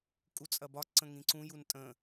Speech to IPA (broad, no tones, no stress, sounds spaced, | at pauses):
kʼ u t͡sʼ ɐ b ɒ ǀ ə̃ ŋ ĩ ǀ ũ j u n tʼ ə̃